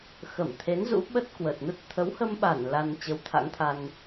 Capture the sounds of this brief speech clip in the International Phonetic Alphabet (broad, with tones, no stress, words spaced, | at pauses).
xə˧˩mt̪ʰe˨˦nzṵ˧˥ ɓə˦˥t̚kwə˨˩t̚nə˦˥t̚ t̪ʰə˨˦whə˧mɓa˧˩n la˧n t͡ɕə˨˦wt̪ʰa̰˧˥ŋt̪ʰa˧n